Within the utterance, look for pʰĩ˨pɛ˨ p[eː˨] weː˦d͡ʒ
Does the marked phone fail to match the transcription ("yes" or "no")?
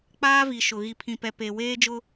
yes